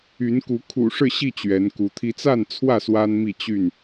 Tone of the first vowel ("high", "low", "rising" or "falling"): rising